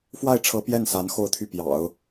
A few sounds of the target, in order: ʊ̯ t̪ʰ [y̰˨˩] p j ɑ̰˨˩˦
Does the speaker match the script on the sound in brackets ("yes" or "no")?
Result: no